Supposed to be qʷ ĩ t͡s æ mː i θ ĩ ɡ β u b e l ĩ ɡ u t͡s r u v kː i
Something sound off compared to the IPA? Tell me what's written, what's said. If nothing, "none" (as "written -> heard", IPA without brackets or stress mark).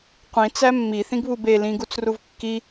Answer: none